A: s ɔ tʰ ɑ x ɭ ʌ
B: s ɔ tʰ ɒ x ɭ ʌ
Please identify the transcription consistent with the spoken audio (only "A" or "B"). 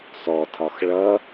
B